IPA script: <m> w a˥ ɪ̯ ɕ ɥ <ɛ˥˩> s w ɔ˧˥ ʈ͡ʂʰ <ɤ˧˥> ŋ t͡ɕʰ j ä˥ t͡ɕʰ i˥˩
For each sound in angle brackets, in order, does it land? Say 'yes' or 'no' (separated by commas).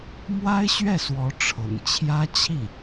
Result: yes, yes, no